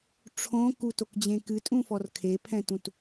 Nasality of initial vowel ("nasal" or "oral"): nasal